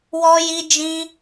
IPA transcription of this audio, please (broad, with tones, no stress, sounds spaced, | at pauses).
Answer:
w ɔ˦ j i˦ d͡ʒ ĩ˦